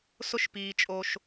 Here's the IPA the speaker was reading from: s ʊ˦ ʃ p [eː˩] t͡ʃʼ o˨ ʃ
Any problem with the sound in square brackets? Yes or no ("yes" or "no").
yes